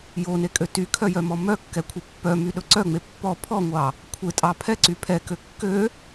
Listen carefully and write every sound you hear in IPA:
jonekʼø tykʰœjœmɔ mœkːɛkʷʰe pːœmyɗɵ ǀœŋ͡me pːɔ pʰɔŋʷɑ | kʷʰetʼɑ pʰɛǀy pʰɛkø kːø

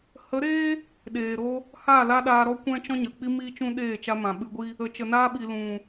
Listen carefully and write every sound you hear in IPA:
hə˨˦ɾeː˦ | ɗeː˨ɾo˧ | haː˦˨la˦ɗaː˧ɾɔ˦ kʷɛ̃˦t͡ʃɔ̃˦ɲə˨k͡pi˦ miː˦t͡ʃũ˦ɗeː˦˨ t͡ʃa˧mã˨ɓɨ˧ɡʷi˦ | ə˧ t͡ʃə˨naː˧ɓi˨ lũ˨

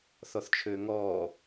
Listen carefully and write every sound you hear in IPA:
θɔθt͡ʃʰøːŋɔː

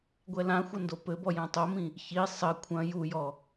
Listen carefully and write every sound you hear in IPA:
ɡʷɛlãxʷɐ ndopɘbɔ jãtˤomĩ | çi sˤɘ kʷʰɐ̃ jujɔ

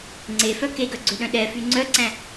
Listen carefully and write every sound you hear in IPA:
ŋ͡ǀefœ keɡœɡ͡ǀøɗœ̃ ɗɛfy ŋ͡ǀœǀæ̃

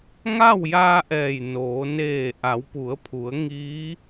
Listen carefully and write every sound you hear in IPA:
ŋa˥˨wjaː˧ ʔɛː˧˩jnoː˩˧ neː˧˩ ʔa˩˧wpu˩˧ə̯pʰu˩˧ə̯ ŋiː˧˥

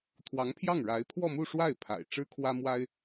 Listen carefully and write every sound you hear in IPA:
t̪ʰwɑ˧˥ŋpʰjɑ˥˩ŋɻa˧˥ɪ̯ pʰwɔ˥˧mu˥˧ ʂwa˥˩ɪ̯ pʰa̰˨˩ɪ̯ ʈ͡ʂɻ̩˥kʰwä˥mwa˥ɪ̯

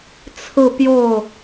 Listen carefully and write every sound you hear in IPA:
t͡sʰɹ̩˥˧pjo˥˩ʊ̯

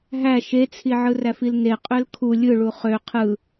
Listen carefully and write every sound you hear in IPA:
ɦæ ʃet͡sʰi ʕɯræfilne qʼølkʰu lʲɯ ɭuχø qʰɯ

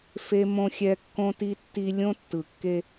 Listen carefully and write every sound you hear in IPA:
fe˦mõ˦xʲɛ˦ kːõ˦ti˦tːi˦ lʲõ˦tːɯ˨kːe˦

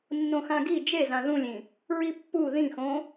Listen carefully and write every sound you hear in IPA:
nːõxãɡi d͡ʒezã ðũlʲĩ | ɹipːu ðĩxõ

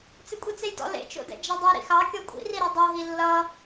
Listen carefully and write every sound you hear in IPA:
t͡sɪkʷʼit͡sejdɔ̰ lḛt͡ʃo̰dɛ̰ d͡ʒadˤʌ ɾḭxɑ kʲɔkʷʼḭriɾo dˤoɦi lːʌ

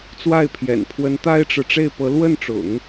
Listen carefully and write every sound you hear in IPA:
t͡swa˥˩ɪ̯pʰjɛ̰˨˩npʰwə˧˥n t̪a˥ɪ̯ʈ͡ʂɻ̩˨ ʈ͡ʂe˥˩ɪ̯pɤ˧˥ lwə˥˩nʈ͡ʂʊ̰˨˩˦ŋ

